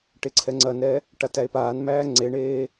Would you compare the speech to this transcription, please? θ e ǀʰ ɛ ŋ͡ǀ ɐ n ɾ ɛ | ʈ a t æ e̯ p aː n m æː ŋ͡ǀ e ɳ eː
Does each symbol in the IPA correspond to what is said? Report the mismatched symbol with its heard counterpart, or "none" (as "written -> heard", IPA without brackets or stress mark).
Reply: θ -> ʈ